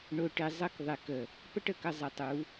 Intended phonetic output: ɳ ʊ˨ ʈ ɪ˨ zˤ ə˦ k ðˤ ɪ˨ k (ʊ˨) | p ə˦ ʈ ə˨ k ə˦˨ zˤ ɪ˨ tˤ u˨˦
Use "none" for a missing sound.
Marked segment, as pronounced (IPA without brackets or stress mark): ə˨